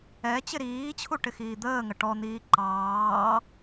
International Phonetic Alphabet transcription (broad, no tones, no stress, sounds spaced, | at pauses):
ɛ t͡ɕ ɪ ɾ iː t͡ɕʰ u ʈ ɪ x iː d̪ əː ŋ ə ʈ ɔ n̪ iː ǃ ɑː